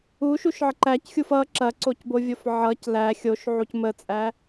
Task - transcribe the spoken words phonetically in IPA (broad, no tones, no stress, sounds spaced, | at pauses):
u ʃ u ʃ ʕ ə ǃ æ c xʲ u f ʌ ǁ ɐ ǀ o c b o vʲ o f ʕ ʌ c l æ xʲ o ʃ ʕ u c m ə t͡sʼ æ